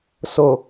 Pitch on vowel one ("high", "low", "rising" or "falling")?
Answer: low